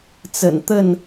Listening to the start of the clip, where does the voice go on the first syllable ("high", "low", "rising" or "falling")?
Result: low